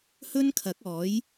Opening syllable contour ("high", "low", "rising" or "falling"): high